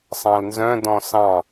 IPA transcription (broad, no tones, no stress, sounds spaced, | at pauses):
sˤ ɑ̃ l n z œ̃ d ɔ̃ s ɑ̃